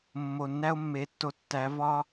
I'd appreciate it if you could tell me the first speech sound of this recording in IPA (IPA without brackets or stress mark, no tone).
mː